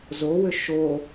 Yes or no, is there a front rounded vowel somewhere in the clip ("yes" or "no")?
yes